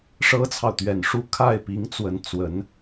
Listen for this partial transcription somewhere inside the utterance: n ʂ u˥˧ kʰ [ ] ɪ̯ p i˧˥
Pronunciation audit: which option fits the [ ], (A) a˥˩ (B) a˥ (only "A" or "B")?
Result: A